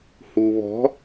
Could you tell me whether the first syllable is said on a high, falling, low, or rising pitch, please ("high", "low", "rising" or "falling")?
low